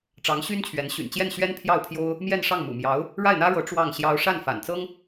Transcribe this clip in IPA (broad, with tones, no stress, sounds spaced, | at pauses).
ʈ͡ʂ ɑ˧˥ ŋ ɕ y˥ n t͡ɕʰ ɥ ɛ˧˥ n ɕ y̰˨˩ n t͡ɕ j ɛ˥˩ n ɕ ɥ ɛ˥ n pʰ j ɑ˥˩ ʊ̯ pʰ j o˥ ʊ̯ | m j ɛ˥˧ n ʂ ɑ˥˩ ŋ m ṵ˨˩ m j ɑ˧˥ ʊ̯ | ɻ a˥˩ ɪ̯ n̪ ä˥ ɻ ɤ˧˥ ʈ͡ʂ w ɑ˥˩ ŋ ɕ j ɑ˥ ʊ̯ ʂ a˥˩ n f a̰˨˩ n t͡s ɤ˥ ŋ